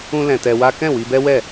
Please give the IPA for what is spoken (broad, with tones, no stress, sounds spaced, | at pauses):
ũ˦ l ɛ̃˧ t ɛ˧ w a˦ k ɛ̃˦˨ w i˧ b ɛ˦ w ɛ˦˨